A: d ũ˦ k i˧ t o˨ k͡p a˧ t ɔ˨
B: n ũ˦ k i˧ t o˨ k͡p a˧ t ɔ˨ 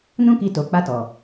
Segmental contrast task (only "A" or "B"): B